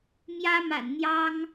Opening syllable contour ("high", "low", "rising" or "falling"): high